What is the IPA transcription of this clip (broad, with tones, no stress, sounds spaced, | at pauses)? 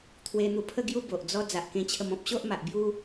t̪ʰ w e˧ n̪ u˧ pʰ ə˥˧ ɡ j u˦ b o˨ ʔ d͡z ɔ˧ d͡z a˨ ʔ k ẽ˧ t͡ɕʰ ə˧ m ɔ̃˦ p̚ ɕ o˦ ʔ m a˨ ʔ b j u˦